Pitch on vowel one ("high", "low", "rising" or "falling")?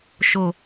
low